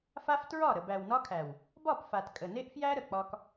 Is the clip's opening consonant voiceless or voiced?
voiceless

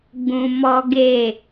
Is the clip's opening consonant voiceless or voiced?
voiced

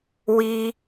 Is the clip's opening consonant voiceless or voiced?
voiced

